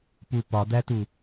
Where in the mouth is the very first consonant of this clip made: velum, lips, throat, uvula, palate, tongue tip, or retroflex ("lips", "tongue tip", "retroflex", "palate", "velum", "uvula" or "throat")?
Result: lips